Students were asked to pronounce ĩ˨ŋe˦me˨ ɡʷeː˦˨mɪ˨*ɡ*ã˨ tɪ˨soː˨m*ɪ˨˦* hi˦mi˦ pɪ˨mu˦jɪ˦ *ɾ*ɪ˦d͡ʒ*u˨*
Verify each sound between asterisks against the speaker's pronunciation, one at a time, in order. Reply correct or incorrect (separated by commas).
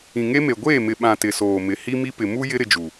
incorrect, correct, correct, correct